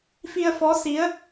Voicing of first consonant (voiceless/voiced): voiceless